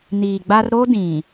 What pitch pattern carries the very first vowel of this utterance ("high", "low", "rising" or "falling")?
low